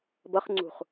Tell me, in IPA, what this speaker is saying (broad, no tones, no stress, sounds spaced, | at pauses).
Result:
b ʌ χ ŋ͡ǀ ṳ χ